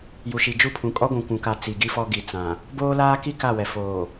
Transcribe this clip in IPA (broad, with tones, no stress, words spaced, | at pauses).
ju˨ʃi˨d͡ʒu˦pʰũ˨ kʼɔ˦ɡʷũ˨kʷũ˨ka˨ t͡si˨ɡi˦fɔ˦ɡi˨ t͡sã˨ | boː˦laː˦ki˦ ka˦˨wɛ˨ foː˨